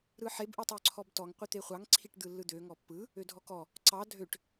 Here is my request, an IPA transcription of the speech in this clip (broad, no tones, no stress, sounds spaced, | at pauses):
ɾ ɯ ħ e b ʔ ɯ tˤ ø ǀʰ ɔ b t ɔ ŋ qʷ i t̪ e χʷ ɑ ŋ ǀʰ i ʈ d̪ ɯ lː ɯ d̪ ø ŋ ɔ pː ɯ | ø dʱ ɔ k ɔ | ǀ ɑ dʱ ø ʈ